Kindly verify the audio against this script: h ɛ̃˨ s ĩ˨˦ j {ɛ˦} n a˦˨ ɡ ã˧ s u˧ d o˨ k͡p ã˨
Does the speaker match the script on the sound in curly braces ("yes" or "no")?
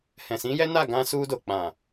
yes